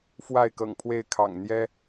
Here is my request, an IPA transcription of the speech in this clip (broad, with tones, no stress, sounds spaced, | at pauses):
f w a˥˨ ɪ̯ k ɤ̰˨˩ ŋ pʰ w e˥˨ ɪ̯ kʰ ɑ̰˨˩ ŋ n̪ j ɛ˦